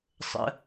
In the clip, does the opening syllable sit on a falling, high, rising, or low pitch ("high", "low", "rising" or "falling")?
high